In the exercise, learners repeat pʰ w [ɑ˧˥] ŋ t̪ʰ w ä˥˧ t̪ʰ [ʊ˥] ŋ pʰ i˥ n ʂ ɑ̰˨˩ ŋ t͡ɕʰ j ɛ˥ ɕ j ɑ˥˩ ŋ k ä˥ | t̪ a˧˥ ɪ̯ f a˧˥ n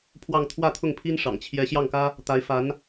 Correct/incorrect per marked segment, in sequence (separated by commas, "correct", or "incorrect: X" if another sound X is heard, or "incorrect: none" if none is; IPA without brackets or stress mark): incorrect: ɑ˥˧, incorrect: ʊ˥˩